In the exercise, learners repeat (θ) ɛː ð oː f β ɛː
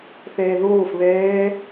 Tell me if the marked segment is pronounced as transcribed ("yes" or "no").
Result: yes